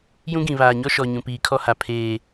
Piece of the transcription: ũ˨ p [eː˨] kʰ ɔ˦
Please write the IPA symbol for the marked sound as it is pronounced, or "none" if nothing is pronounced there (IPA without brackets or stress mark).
iː˨